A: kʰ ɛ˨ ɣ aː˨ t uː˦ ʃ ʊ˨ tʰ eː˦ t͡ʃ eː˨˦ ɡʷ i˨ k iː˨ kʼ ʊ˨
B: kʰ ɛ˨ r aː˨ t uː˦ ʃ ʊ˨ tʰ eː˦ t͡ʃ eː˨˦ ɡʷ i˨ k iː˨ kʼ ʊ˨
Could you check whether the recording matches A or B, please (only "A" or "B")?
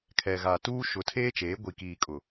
A